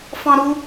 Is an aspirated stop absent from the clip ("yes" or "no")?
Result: yes